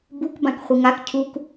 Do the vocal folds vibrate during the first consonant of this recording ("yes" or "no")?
yes